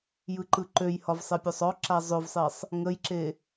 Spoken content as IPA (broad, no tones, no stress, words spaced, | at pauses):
jɯǃɯǃøjhɒv sˤepʲøsˤɔǁa zˤøvsˤesˤ | ŋəjǁe